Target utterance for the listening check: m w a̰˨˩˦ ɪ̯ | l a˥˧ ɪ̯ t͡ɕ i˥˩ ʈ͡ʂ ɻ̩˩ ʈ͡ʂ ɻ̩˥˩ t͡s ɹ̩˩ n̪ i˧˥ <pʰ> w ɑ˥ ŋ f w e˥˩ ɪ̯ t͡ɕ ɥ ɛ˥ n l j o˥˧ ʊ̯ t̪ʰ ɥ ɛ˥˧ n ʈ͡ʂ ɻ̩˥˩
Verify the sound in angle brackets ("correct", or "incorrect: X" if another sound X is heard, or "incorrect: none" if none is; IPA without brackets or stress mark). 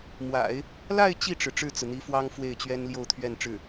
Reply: incorrect: f